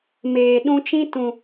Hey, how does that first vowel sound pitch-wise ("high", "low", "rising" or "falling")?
low